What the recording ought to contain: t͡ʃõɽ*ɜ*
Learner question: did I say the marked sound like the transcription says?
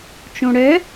no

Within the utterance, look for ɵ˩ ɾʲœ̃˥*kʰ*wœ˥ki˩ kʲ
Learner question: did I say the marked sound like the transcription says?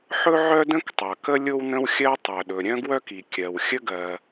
no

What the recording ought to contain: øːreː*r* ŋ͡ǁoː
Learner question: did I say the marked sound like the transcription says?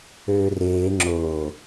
no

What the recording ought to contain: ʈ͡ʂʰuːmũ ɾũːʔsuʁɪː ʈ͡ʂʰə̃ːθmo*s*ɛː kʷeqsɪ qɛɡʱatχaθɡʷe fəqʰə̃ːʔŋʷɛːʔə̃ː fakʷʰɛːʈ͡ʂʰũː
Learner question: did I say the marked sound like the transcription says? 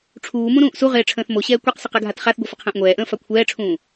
no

